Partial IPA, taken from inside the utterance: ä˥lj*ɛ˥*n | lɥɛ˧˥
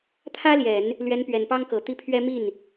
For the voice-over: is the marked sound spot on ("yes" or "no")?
no